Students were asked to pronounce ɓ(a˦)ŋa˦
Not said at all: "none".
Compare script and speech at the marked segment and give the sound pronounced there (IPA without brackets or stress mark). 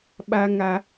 a˦